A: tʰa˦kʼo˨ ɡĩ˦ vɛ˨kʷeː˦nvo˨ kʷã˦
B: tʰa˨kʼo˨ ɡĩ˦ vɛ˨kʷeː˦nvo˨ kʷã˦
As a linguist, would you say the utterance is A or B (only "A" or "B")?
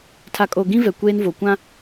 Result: B